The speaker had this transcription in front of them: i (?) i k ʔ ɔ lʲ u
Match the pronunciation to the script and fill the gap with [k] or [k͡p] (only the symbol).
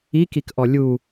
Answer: k